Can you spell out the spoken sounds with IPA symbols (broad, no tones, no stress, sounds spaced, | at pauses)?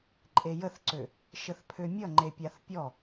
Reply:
ǃʼ e j ə θ ǀ ø | ʃ ə θ pʰ ø mʲ ʌ ŋ͡ǃ e pʲ a θ pʲ ɔ